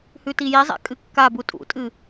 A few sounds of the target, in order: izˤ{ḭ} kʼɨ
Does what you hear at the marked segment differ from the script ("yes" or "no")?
yes